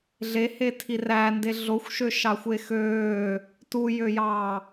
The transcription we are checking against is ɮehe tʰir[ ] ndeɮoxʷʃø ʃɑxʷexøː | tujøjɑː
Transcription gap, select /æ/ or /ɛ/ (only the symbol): æ